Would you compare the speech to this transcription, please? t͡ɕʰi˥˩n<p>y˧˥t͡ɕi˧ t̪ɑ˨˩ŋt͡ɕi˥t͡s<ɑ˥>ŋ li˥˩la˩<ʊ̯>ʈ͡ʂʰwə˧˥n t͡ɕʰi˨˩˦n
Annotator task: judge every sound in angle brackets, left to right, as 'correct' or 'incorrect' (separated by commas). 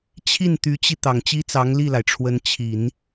incorrect, incorrect, incorrect